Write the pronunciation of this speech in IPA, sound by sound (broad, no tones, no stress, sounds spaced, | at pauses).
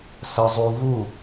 s ɐ zˤ u v u